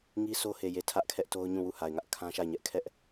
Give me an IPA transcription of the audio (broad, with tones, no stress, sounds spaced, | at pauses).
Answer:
ŋ i˦ sʰ o˦ h e˨ j e˨ tʰ ä˦ ʔ kʰ ɛ˦ ʔ t o˦ ʊ̯ ɲ ũ˦˨ w u˦˨ h a˨ ɪ̯ ŋ ä˦ ʔ kʰ ã˦ ʃ a˦˨ ɪ̯ ɲ ɛ˦ ʔ kʰ ɛ˦ ʔ